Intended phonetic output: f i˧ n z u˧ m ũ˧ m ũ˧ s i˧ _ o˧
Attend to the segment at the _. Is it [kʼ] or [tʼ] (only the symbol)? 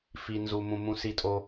tʼ